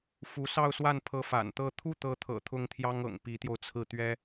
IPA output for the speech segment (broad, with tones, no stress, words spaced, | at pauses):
fu˧˥sɑ˥˧ʊ̯swa˥˩npʰɤ˧˥ fa̰˨˩nt̪ɤ˥˧ t̪ʰu˥˩t̪ɤ˧˥t̪ʰɤ̰˨˩ t̪ʰʊ˥˩ŋt̪ʰjɑ˥ŋɤ̰˨˩ŋ pi˧˥t̪jo˧ʊ̯t͡sʰɹ̩˥˩ t̪ɥɛ˥